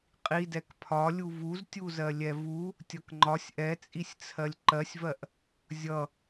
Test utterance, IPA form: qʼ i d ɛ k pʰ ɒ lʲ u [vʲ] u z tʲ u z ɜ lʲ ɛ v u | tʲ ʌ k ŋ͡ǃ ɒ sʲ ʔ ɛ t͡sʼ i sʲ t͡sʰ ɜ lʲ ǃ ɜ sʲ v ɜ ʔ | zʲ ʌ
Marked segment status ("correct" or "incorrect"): incorrect